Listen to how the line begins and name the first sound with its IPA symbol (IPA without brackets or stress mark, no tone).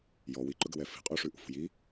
j